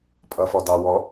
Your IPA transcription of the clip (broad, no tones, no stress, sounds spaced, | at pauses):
pʼ ʌ f ɔ d ɑ w ɔ